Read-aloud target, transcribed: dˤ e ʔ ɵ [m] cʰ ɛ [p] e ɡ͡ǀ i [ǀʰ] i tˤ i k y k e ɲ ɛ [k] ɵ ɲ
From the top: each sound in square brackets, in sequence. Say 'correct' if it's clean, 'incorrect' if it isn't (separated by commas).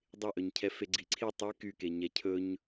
incorrect, incorrect, correct, incorrect